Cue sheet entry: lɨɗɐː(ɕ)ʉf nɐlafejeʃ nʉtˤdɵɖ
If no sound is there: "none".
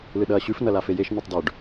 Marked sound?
ɕ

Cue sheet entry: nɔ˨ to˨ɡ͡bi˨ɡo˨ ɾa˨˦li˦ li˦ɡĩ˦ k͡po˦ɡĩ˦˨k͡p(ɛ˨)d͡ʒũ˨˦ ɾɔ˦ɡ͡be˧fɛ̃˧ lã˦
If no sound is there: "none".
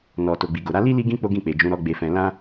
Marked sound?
e˨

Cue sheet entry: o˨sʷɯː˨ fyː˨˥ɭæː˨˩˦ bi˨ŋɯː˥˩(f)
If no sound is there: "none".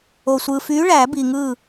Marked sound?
none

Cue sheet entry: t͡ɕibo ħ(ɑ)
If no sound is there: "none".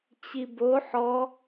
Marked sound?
ɔ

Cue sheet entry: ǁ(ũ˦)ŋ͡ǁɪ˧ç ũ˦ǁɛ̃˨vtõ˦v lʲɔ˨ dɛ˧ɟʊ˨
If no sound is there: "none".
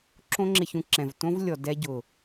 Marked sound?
õ˦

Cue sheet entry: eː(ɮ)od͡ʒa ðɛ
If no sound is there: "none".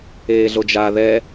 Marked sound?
ɮ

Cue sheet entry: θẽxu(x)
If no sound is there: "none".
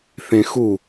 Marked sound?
none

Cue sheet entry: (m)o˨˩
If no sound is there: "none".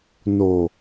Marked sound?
n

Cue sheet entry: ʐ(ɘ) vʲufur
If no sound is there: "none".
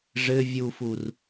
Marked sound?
ɘ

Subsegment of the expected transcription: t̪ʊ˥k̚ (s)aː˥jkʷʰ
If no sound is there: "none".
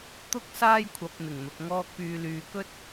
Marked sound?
s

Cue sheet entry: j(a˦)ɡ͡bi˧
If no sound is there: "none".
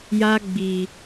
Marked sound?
a˦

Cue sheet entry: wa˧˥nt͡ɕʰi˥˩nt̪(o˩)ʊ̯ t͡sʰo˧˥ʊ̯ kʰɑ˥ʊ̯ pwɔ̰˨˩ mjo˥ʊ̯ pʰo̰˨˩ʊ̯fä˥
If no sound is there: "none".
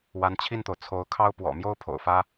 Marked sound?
o˩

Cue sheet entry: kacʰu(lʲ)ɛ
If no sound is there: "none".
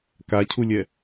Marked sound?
lʲ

